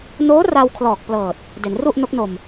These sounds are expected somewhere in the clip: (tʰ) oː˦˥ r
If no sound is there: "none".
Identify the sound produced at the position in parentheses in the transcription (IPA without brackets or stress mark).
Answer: n